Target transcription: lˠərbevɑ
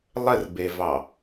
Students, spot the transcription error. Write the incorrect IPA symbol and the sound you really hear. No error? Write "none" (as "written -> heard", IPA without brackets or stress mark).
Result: none